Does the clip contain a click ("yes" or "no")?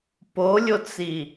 no